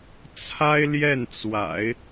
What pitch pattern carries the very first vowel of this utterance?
high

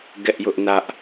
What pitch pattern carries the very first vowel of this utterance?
high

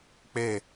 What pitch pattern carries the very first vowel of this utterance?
falling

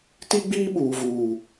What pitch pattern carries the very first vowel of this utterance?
high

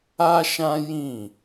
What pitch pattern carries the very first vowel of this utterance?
high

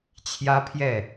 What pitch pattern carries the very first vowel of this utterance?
high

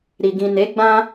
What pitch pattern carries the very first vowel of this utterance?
low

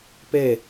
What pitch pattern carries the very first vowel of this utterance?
falling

